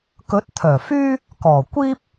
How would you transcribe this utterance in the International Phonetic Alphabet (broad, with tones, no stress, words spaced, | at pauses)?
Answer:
kɵ˨˥t̚t̪ʰœː˨˩fyː˥ | kɔː˨˩kʷiː˥p̚